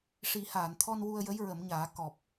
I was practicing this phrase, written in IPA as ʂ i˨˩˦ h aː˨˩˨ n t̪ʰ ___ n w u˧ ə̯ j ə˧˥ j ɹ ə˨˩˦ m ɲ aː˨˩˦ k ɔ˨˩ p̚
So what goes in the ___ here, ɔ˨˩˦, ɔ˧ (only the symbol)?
ɔ˧